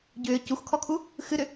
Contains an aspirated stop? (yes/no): yes